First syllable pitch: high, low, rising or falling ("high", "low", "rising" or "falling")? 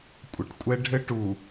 low